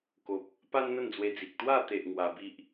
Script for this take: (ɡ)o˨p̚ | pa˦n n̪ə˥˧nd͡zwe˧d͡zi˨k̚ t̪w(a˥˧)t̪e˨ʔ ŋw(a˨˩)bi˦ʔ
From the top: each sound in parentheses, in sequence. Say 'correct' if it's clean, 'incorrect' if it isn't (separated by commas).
incorrect, correct, incorrect